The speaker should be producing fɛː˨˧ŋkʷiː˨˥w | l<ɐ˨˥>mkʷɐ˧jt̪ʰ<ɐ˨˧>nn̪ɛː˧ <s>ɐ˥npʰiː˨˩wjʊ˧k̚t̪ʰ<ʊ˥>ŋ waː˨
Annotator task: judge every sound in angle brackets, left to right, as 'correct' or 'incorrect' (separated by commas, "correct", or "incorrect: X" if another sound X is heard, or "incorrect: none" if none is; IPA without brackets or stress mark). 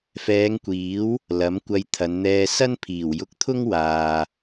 correct, correct, correct, correct